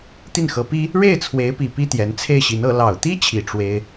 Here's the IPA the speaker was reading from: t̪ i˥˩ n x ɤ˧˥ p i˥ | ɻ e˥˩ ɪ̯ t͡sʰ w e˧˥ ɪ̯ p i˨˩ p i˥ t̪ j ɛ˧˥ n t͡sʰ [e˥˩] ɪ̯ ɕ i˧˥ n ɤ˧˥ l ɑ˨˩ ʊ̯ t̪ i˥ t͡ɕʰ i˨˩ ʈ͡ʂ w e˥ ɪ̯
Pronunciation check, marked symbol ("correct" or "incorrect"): correct